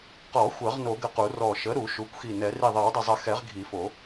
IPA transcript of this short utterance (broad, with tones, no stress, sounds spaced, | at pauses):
q ɔ˨˩˦ xʷ ɜ˨˩˦ ʁ n o˨˩˦ ɡ ə˧˩ q u˨˩˦ r ɔ˧˩ ʃ ə˩˥ ɾ u˨˩˦ ʃ u˩˥ kʷ x i˧˩ n ɛ˨˩˦ r i˧˩ ðˤ ɜ˨˩˦ w dˤ ə˧˩ zˤ ə˨˩˦ x ɛ˨˩˦ ʁ ɡʱ i˨˩˦ f o˨˩˦